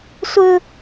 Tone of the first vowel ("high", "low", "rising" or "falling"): high